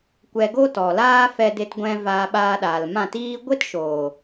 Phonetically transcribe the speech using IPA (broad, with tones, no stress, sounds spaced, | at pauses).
kʷ ɛ˧ ɡ o˦ t ɔ˨ l aː˦ f ɛ˧ d e˧ t ɡʷ ɛ̃˧ v aː˧ ɓ aː˧ ɗ aː˨ l m ã˦˨ t iː˦ ɡʷ e˦ t ʃ oː˨